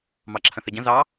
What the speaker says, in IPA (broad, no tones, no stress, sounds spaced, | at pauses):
m ɑ ǁʰ ə̃ θ i ɟ ə̃ z ɑ